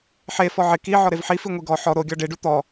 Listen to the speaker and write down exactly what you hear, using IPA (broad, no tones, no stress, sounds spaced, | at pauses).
ħ e f ɔ ʕ ɪ k i ʕ ɔ ɾ e v ħ i f i ŋʷ i ɡ ɔ ħ ɔ ɾ o ɡʲ ɔ ɖ e ɖ u t̪ ɔ